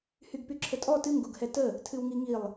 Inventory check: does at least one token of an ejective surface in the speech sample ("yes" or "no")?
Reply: yes